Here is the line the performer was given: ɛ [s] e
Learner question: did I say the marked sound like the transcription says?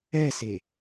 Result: yes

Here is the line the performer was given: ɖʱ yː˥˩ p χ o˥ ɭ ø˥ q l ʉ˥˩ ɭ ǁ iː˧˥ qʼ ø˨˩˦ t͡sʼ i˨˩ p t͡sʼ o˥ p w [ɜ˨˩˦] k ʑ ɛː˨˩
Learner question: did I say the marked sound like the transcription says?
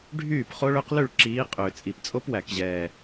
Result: no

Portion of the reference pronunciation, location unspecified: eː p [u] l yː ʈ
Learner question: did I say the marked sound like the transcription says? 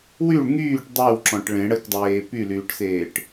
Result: no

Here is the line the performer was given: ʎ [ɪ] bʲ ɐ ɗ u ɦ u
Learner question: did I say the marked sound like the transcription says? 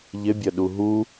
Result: yes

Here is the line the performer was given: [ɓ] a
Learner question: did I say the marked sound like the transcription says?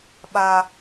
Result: yes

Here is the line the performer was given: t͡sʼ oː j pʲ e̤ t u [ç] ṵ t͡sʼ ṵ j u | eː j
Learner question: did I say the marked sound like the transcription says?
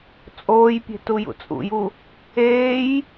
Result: no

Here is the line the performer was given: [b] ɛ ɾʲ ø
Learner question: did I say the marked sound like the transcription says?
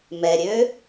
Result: no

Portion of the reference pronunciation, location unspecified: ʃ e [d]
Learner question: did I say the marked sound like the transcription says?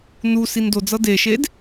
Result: yes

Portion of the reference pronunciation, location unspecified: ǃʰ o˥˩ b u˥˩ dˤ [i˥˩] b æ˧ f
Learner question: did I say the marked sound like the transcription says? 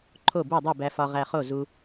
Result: yes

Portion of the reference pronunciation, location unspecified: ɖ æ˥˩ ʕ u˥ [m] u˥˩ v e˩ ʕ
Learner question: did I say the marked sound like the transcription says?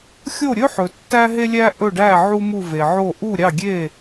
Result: yes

